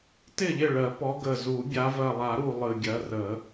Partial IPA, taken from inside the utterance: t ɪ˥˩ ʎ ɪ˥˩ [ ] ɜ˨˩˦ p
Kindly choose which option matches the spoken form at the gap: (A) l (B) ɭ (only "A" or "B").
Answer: B